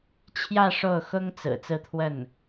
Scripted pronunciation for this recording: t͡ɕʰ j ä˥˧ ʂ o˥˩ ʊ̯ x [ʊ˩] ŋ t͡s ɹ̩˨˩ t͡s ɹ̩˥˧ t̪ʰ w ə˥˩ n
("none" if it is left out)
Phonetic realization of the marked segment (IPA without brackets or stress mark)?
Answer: ʊ˥